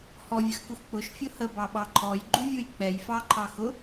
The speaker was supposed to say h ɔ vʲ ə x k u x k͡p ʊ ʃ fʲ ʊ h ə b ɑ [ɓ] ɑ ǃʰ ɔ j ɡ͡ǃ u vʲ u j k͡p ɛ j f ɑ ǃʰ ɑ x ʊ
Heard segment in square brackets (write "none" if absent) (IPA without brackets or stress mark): ɓ